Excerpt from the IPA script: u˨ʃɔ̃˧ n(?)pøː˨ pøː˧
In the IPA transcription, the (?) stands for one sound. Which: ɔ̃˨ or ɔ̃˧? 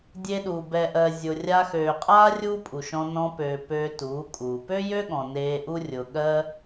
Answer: ɔ̃˧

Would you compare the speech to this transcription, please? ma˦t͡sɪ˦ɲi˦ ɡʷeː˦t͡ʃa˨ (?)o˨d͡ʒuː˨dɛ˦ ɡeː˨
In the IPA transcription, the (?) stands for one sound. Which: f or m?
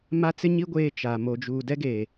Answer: m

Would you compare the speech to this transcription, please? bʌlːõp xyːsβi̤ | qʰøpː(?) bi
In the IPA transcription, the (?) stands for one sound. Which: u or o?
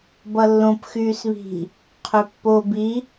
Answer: o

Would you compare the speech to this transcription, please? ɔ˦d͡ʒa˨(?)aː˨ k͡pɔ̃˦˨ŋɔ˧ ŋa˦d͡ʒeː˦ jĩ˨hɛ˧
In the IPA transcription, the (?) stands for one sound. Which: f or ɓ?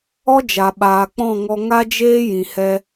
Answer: ɓ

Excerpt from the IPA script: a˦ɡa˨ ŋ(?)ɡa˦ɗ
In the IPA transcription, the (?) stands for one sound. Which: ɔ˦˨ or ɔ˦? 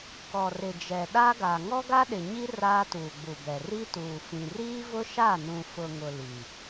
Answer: ɔ˦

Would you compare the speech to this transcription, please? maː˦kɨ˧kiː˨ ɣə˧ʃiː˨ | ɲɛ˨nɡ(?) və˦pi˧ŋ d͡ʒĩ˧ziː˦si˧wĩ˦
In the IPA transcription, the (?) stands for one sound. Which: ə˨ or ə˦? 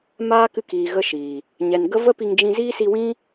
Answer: ə˦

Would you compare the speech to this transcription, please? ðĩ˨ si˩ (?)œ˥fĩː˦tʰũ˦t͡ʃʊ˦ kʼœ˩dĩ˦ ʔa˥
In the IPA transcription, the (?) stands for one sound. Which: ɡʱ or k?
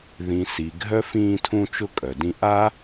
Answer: ɡʱ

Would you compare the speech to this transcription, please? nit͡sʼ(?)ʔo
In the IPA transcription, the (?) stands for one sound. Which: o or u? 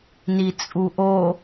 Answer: u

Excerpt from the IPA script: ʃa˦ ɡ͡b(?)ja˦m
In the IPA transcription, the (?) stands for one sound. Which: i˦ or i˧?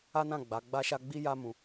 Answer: i˦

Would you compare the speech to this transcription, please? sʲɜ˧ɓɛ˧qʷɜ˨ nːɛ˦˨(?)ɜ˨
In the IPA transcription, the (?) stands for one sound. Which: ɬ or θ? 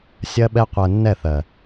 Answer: θ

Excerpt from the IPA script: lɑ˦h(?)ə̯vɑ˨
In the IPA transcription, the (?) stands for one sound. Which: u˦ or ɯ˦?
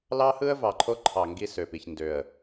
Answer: ɯ˦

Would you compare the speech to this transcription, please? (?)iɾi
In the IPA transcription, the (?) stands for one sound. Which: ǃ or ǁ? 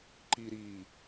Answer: ǃ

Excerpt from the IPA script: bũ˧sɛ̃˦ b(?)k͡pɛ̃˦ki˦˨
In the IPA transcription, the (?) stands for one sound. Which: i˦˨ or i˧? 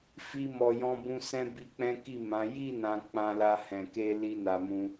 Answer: i˧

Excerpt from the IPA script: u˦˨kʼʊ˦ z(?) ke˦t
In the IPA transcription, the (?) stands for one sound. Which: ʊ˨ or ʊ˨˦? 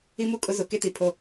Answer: ʊ˨˦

